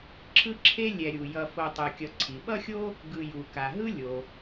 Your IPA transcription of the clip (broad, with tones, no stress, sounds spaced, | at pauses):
ǁʰ ɯ˦ ǁʰ e˦ lʲ ɛ˨ ɾʲ u˩ j ʌ˨ f o˨ tˤ ɯ˩ kʲ ʌ˨ ǀʰ i˩ ɓ ʌ˥ xʲ o˥ | ɡ ɯ˨ j u˩ k a˩ ɦ ɯ˥ lʲ o˩